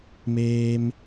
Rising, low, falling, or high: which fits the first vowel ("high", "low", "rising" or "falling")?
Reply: high